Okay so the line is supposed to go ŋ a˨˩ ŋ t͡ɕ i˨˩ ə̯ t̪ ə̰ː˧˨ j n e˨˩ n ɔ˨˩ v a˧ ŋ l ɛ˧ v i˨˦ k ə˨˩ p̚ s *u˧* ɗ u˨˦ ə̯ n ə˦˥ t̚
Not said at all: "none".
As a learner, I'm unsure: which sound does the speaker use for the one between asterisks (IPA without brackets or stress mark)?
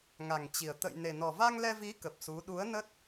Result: u˨˦